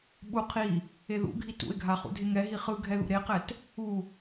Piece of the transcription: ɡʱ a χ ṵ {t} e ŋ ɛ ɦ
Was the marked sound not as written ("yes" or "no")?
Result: yes